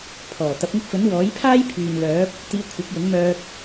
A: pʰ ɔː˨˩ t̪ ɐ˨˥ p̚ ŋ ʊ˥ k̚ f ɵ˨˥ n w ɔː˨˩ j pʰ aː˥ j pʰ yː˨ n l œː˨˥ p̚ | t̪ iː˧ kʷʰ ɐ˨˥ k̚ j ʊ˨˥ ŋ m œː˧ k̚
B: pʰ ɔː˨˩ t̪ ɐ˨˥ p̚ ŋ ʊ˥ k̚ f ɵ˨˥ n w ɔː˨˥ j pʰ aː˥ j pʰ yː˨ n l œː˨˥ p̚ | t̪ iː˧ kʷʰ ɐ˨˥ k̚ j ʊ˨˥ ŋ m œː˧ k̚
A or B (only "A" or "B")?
B